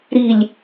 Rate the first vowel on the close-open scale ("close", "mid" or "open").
close